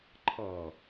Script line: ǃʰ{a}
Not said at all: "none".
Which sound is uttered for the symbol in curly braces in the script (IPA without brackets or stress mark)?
ʌ